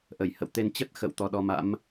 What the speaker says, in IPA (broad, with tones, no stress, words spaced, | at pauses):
ʔə˧˩jhə̰˧˨wt̪e˧n t͡ɕə˦˥t̚xə̰˧˨w t̪ɔ˨˦ɗɔ˨˦ma̰˧˥m